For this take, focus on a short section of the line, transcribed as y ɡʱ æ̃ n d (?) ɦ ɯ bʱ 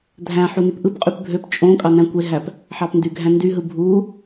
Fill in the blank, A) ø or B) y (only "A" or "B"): B